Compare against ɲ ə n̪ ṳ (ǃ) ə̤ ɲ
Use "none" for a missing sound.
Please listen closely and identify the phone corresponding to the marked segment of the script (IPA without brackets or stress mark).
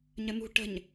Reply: ʈ